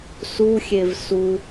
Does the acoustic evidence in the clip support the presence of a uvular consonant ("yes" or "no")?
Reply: no